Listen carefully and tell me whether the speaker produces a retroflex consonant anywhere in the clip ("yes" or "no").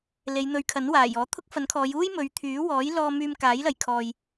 no